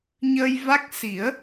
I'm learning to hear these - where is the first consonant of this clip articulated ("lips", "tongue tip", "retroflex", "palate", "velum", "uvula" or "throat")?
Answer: palate